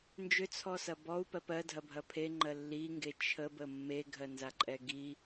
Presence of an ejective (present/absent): present